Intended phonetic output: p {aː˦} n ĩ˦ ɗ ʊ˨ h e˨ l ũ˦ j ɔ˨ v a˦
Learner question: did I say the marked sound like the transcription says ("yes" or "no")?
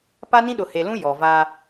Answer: no